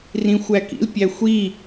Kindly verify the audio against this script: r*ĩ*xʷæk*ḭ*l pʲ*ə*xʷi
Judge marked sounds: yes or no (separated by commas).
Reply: yes, yes, no